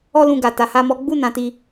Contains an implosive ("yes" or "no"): no